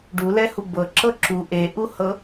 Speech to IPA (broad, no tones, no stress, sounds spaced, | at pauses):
ɖ u l ɛ h u b ɤ ǁ ɤ ǁ u ʔ e ʔ u h ɤ